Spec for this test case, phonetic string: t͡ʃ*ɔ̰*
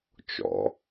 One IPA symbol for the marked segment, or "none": ɔ̰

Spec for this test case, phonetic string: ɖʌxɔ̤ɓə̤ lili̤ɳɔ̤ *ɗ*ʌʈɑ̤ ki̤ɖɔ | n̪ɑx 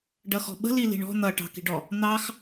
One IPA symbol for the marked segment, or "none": n̪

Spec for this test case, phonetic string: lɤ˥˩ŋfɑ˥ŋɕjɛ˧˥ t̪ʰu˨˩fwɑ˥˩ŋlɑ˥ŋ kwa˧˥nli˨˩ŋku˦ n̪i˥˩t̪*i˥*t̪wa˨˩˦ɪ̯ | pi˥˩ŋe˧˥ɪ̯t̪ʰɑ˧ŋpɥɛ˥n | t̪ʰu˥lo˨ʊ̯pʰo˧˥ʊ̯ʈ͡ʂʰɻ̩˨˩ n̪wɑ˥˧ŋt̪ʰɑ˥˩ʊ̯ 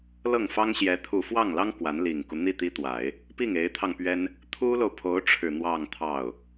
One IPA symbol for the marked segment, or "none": i˥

